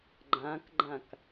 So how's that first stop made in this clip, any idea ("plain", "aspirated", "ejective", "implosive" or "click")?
click